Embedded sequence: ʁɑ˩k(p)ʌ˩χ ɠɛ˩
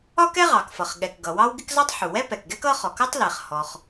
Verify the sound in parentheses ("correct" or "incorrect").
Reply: incorrect